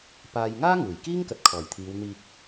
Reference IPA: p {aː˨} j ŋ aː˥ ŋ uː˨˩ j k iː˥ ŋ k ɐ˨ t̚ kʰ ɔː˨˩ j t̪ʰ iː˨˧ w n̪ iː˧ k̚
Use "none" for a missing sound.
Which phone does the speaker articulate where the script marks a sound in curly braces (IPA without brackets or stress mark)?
aː˨